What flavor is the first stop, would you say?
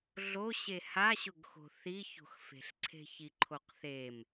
plain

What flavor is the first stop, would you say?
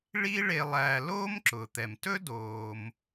click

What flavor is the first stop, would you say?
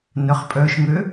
ejective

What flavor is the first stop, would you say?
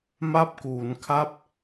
plain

